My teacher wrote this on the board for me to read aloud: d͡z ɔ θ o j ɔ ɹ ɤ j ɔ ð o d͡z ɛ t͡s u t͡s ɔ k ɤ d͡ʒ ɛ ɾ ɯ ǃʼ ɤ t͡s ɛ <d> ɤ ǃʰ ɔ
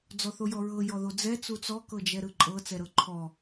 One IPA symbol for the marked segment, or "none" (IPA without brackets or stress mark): ɾ